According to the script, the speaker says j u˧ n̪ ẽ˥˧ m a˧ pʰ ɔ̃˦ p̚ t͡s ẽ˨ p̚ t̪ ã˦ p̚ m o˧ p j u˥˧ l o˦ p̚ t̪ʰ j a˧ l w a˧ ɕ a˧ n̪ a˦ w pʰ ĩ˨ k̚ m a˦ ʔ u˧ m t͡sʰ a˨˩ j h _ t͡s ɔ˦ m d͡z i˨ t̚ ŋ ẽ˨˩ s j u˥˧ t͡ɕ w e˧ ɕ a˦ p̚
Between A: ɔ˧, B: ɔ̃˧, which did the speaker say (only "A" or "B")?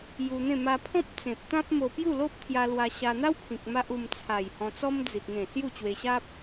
B